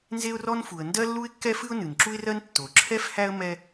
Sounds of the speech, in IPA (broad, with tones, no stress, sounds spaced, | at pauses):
n z e˥ ʊ̯ r ɔ˥ n f u˩ ə̯ n d ɜ˥ lː u˥ ɪ̯ kː ɛ˥ f ɨ˥ ʊ̯ n ɨ˩ n ǁ u˥ ɪ̯ r ɜ˥ n tː o˩ ǁʰ ɛ˥ f h æ˥ ə̯ m ɛ˥